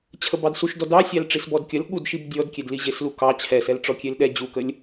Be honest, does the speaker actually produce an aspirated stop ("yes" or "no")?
yes